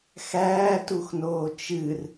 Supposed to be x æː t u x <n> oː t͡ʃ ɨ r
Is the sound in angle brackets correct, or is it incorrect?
correct